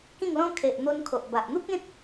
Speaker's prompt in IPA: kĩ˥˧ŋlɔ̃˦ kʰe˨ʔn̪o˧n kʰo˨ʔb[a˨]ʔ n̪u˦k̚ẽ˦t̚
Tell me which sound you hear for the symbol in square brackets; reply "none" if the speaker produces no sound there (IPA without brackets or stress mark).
a˨